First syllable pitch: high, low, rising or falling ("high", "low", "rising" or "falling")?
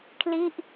falling